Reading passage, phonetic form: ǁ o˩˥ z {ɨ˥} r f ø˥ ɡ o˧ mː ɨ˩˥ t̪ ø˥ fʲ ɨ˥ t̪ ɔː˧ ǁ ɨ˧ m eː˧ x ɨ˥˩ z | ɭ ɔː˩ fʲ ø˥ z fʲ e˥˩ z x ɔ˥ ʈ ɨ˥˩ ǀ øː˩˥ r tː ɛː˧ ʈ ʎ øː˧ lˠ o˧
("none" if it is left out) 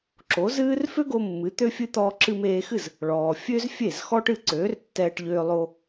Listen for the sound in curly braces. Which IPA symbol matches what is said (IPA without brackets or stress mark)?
ɨː˥